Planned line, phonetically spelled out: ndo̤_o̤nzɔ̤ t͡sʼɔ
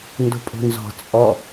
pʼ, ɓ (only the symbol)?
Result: pʼ